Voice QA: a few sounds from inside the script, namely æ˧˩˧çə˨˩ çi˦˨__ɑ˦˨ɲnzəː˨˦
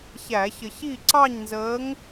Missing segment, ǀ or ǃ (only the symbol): ǀ